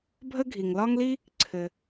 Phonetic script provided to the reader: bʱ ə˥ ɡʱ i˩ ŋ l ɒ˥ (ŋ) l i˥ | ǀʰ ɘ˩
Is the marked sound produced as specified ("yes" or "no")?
yes